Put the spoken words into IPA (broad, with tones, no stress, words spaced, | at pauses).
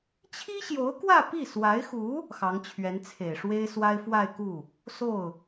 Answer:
t͡ɕʰi˥ɕjo˧˥ʊ̯kwä˥˧ pi˥˩ swa˧˥ɪ̯xu˧˥ | xɑ˧˥ŋt͡ɕʰɥɛ˧˥nt͡sʰe˨˩ɪ̯ ʂwe˥ɪ̯swa˥ɪ̯ fwa˥˧ɪ̯ku˥˩ | so˥˩ʊ̯